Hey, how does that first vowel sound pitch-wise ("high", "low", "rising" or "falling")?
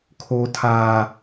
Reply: high